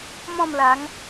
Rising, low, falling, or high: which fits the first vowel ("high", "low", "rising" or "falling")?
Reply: falling